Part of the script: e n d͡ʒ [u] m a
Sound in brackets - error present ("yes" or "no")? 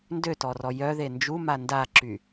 no